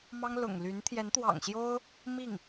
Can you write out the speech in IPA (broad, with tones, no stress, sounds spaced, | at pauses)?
m ɑ˥ ŋ l ʊ̰˨˩ ŋ l y˧˥ n t̪ʰ j ɛ˧˥ n t̪ w ɑ̰˨˩ ŋ ɕ j o˥ ʊ̯ | m i˥˩ ŋ